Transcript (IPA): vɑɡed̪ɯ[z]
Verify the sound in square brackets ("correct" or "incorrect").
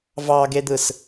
incorrect